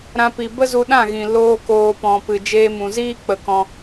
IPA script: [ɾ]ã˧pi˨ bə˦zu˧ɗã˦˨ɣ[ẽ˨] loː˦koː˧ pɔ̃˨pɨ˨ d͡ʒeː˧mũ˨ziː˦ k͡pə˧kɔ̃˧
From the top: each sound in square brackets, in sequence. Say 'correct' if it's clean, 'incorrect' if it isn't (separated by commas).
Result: correct, incorrect